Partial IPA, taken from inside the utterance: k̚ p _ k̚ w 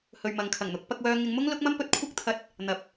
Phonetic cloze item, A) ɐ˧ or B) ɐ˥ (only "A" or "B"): A